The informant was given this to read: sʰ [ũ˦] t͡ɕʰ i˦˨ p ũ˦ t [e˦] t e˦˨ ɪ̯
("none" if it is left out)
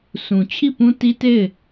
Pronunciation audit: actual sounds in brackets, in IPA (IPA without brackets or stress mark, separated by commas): ũ˨, i˦